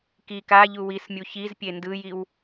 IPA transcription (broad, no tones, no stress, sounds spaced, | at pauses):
k i k a ʎ u w i s mʲ u ç i z pʲ e n d ɯ j i w